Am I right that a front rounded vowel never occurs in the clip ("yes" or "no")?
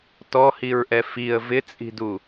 yes